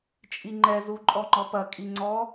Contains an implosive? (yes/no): no